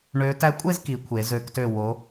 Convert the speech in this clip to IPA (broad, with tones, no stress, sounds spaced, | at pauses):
ɳ ø˧˥ t æ˧˥ kʷʼ e˥˧ z k i˩˧ kʷʰ e˩˧ z ø˧˥ k t ø˥˧ w o˧˥